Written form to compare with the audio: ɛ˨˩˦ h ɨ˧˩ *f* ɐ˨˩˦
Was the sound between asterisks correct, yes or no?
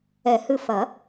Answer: yes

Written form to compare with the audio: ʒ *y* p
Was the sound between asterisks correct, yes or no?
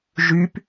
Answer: yes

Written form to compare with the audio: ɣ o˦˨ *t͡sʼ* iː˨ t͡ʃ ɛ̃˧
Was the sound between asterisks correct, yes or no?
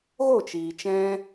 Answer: no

